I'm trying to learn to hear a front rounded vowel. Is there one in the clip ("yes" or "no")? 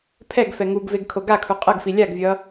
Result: no